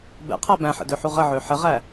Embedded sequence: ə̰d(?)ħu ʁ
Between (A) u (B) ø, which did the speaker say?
B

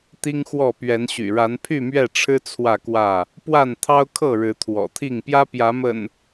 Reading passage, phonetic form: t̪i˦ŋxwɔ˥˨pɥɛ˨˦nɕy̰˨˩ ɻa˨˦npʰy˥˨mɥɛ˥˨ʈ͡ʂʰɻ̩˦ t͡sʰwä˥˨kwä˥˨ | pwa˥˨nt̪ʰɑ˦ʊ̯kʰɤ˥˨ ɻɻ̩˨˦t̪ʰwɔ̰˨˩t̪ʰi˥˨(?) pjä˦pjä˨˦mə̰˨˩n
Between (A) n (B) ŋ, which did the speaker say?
B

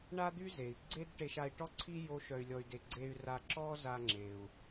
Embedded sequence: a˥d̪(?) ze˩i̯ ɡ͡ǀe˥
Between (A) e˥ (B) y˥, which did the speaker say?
B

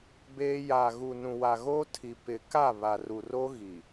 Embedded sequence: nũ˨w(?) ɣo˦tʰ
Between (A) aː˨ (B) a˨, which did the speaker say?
B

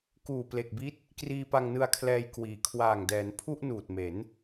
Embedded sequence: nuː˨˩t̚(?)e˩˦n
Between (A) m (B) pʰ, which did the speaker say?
A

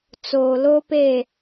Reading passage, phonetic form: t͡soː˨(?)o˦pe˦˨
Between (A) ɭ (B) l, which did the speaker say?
B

